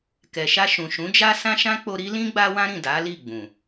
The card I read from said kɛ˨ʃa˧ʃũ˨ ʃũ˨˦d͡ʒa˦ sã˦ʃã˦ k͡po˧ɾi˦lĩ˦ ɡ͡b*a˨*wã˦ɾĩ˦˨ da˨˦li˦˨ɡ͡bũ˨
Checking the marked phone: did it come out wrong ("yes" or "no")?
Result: yes